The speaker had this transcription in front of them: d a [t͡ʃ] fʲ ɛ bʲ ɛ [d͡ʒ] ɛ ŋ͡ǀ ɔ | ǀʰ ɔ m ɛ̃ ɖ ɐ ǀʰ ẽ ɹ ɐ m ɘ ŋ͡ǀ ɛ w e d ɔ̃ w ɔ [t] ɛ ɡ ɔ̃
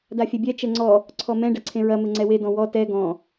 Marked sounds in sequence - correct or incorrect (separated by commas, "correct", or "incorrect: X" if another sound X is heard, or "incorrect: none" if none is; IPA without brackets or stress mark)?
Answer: incorrect: none, incorrect: t͡ʃ, correct